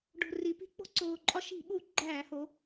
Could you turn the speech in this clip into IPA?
ɖ o̤˨˩ r i˩˧ p i̤˦ k͡p o̤˦ ǀ oː˨˩ ǃʼ ɒ˦ ʃ i̤˧˩˧ ɓ u˧˩˧ ɡ͡ǃ æː˧˩˧ h o˩˧

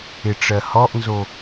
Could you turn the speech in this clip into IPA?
ɪ ʈ͡ʂ ɜ h ɔ ʔ n z o

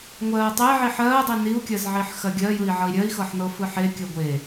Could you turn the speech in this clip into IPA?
ŋʷ ɜː tˤ e ʕ i ħ ɜː dˤ i n i u̯ kʲ ɜ z ʕ i ħ x ɜ ɡʲ ɜ j ɯ i̯ ʕ ʌ i̯ ɾʲ ɜ i̯ x ɤ ħ n ɤ f ɯ ħ e kʲ ɜ ɡʷ e

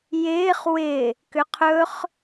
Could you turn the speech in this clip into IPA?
j ɪː χ w ɪ | k ʏ qʰ ɵ χ

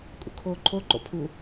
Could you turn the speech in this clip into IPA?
kʼ ṵ kʰ oː ǃʰ o ǃ o̰ pʰ u

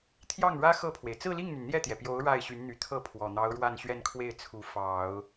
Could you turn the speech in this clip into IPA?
t̪ʰ j ɑ˥˩ ŋ ɻ ä˥ x ɤ˥˩ pʰ w e˩ ɪ̯ t͡s ɹ̩˥˧ l i˥˩ ŋ n̪ y˩ n n̪ j ɛ˥˩ t̪ j ɛ˩ p j o˧˥ ʊ̯ ɻ a˥˩ ɪ̯ ɕ y˧˥ n n̪ y˨˩ t̪ʰ ɤ˥˩ pʰ w ɔ˨˩ n̪ ɑ˧˥ ʊ̯ ɻ w a˥˧ n ɕ ɥ ɛ˥˧ n kʰ w e˥˩ ɪ̯ t͡sʰ u˧˥ f ɑ˨˩˦ ʊ̯

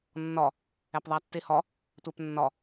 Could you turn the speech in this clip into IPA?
nː ɒ | æ p ðˤ æ tː e h ɒ | tʷ æ p nː ɒ

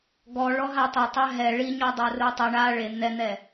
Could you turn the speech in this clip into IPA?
ɡ ɔ ɭ ɔ ɦ a tˤ ɛ tˤ ɛ ɦ ɛ ɭ i ɲ ɔ dˤ a r u tˤ u ɳ a ɭ e n̪ ɛ n̪ ɛ

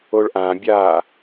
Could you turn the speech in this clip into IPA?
o ɭ ʔ ã bʲ aː

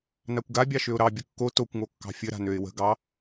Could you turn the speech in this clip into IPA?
n a kʷ ɡ a bʲ ɑ ʃ ø ʊ̯ ɾ ɑ bʲ ə kː o t o kʷ ŋ o kː ɑ̤ fʲ ɘ ɾ a̤ n ø ɪ̯ w ə̤ ɡ ɑ

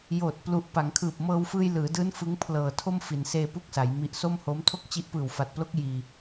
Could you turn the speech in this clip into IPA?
j oː˨˩ t̚ p l u˨˩ ʔ p a˩˦ ŋ kʰ ɯː˨˩ p̚ m ɤː˧ w f ɯː˧ j l ɯː˩˦ d ɯː˦˥ n f ɯ˦˥ ŋ pʰ l ɤː˨˩ tʰ o˥˩ m f i˩˦ n s eː˧ p u˥˩ k̚ s a˩˦ j m i˨˩ ʔ s o˥˩ m h o˦˥ m tʰ o˥˩ k̚ t͡ɕ i˦˥ ʔ p ɯː˨˩ w f a˨˩ t̚ p l o˦˥ k̚ j iː˧

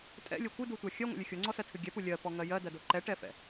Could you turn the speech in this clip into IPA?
tʼ ɛ̰ lʲ o kʷ ɨ d u tʷ a xʲ ɜ ŋʷ ɛ̰ lʲ ɨ xʲ o ŋ͡ǀ ɔ s ɜ tʰ ɨ ɡʲ ɛ p u lʲ ɜ p ɔ ŋ ɜ j ɜ d ɜ d o ǃ ɛ ʈ ɛ f ɛ̰

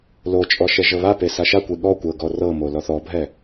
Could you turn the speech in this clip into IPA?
l o t͡ʃʼ ɔ ʃ ɛ ʒ ɤ β a p e s a ʃ a kʷ e ɠ ɔ kʷ ɤ ɡ ɔ r ɤ m o l ɔ θ ɔ bʱ ɛ

